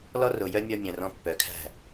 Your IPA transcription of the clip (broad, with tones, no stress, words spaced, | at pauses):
lɔ˦ro˨jœ˦ mʲɔ˦mʲœ̃˨ rɔ̃˦pːœ˨˦ kʰæ̤˦˨